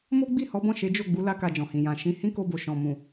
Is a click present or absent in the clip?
absent